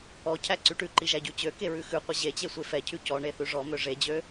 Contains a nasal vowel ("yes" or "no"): no